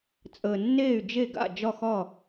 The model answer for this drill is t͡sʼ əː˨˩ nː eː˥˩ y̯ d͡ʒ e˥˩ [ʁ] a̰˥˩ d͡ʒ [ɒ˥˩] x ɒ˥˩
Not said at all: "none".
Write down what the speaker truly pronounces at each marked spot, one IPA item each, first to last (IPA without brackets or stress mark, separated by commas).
ɡ, ɒ˥˩